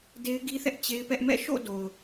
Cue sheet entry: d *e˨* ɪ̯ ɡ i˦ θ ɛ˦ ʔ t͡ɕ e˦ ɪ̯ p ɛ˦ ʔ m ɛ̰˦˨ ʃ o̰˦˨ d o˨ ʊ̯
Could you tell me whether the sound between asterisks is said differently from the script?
yes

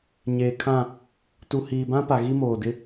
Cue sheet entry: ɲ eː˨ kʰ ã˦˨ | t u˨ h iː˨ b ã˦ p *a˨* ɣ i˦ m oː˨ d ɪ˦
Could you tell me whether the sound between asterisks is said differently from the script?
no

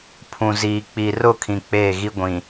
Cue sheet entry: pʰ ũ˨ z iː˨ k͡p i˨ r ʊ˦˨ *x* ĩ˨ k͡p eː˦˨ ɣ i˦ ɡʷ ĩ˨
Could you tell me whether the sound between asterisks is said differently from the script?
yes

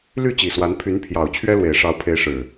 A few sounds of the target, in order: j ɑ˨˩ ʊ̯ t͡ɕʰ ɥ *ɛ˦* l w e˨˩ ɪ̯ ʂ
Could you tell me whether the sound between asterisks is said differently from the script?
no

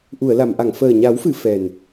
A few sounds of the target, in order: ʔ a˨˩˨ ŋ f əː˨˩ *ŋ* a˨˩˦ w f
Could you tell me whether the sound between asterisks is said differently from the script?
yes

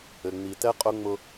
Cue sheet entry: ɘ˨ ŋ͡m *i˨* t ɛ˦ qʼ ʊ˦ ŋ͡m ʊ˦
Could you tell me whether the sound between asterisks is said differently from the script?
no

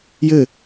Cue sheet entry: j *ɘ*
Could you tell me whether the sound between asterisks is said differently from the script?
no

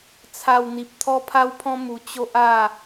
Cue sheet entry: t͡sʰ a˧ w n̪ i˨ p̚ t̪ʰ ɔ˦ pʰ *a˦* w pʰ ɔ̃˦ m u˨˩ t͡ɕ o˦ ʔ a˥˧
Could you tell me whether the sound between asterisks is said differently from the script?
no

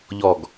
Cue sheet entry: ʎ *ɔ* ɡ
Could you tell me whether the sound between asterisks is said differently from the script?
no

